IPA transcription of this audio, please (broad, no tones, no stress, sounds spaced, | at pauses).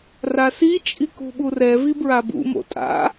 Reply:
r a s i t͡ʃʼ i k ṳ ɓ u r ɛ v i b ɹ a b ṵ m o̰ tʼ a̰